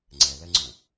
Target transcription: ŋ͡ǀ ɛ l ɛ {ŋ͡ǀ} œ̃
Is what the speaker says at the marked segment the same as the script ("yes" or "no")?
yes